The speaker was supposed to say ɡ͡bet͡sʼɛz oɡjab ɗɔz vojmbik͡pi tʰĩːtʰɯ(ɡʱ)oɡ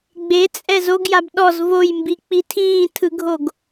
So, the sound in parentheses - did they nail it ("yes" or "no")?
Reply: yes